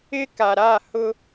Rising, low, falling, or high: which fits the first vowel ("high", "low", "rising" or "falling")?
high